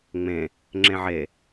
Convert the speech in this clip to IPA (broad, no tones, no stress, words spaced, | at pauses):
ŋ͡mẽ | ŋ͡ǁẽʕe